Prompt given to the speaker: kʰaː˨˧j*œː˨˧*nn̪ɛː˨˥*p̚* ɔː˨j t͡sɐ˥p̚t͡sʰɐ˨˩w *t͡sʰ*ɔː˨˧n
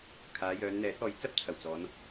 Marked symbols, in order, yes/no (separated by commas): yes, no, no